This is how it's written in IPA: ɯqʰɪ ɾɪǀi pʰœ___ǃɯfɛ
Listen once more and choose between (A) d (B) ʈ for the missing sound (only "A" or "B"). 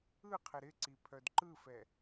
A